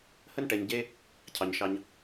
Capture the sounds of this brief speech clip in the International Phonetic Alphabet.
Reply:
h ə˦ n ʈ ɛ˧ ɲ ɟ e˦ | cʰ ɑ˧ ɲ ʃ ɑ˦ ɲ

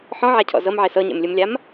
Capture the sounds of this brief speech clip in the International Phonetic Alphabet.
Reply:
ħ ɔ̃ ʕ a cʰ ɔ̰ z ɤ m ʕ e s ɤ ɲ ḛ m lʲ ɯ m lʲ a m

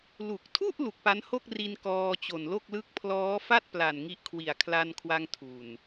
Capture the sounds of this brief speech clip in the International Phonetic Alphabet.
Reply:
l u˨˩ k̚ tʰ u˥˩ ʔ l u˨˩ k̚ p a˦˥ n h o˥˩ k̚ r i˧ n k ɔː˧ t͡ɕ o˨˩ n l o˥˩ k̚ l ɯ˦˥ k̚ pʰ l ɔː˦˥ f a˥˩ t̚ p l a˨˩ n ŋ i˦˥ ʔ kʰ w i˨˩ a̯ kʰ l a˧ n kʰ w a˧ ŋ tʰ u˨˩ n

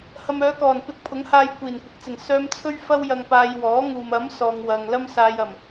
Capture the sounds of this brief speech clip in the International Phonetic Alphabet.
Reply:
h ɐ˨ m œː˨˧ k ɔː˨˩ n p ɪ˧ k̚ pʰ ʊ˨˥ ŋ h aː˧ j kʷ iː˨˩ n kʷ ɪ˨˥ k̚ t͡s ɪ˨˩ ŋ s œː˧ m t͡sʰ ɵ˥ ɥ f ɐ˥ w j ɐ˧ ŋ p aː˧ j w ɔː˨˥ ŋ uː˨ m ɐ˨˥ m s ɔː˨ ŋ w ɐ˨ ŋ l ɐ˥ m s aː˧ j ɐ˨˩ m

